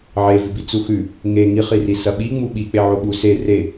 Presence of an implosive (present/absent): present